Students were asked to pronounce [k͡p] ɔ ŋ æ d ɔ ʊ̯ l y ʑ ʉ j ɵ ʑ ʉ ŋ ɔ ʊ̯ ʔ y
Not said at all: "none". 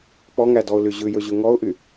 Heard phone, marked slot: k͡p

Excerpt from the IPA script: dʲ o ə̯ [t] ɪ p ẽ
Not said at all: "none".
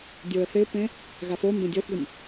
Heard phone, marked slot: θ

